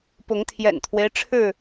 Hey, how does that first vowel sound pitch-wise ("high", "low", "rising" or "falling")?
rising